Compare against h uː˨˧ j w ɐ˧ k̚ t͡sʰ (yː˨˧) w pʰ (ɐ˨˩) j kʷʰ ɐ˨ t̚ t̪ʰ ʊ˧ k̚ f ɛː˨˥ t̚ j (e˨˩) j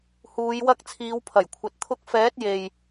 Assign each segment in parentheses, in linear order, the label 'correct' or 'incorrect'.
incorrect: iː˨˧, correct, incorrect: e˨

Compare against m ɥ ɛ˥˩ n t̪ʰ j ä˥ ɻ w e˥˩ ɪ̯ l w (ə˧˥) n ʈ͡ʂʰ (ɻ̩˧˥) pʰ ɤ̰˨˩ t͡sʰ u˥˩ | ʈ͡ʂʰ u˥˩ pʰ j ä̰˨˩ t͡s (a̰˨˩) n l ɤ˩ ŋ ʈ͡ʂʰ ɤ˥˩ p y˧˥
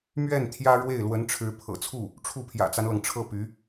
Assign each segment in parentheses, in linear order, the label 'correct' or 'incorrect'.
correct, correct, incorrect: a˦

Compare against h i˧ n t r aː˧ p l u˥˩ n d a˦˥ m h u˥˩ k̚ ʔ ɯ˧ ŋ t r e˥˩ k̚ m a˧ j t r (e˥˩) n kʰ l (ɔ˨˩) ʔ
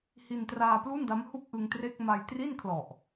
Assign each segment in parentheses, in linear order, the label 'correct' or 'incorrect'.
incorrect: i˥˩, correct

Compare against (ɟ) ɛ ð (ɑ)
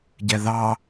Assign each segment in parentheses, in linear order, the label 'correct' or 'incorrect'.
correct, correct

